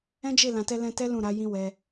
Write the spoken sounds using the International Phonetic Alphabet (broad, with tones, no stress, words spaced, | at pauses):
ɛ̃˦d͡ʒe˦˨ lã˨tɛ˧lɛ̃˧tɛ˦ lũ˦˨ɾa˨˦jĩ˦ wɛ˧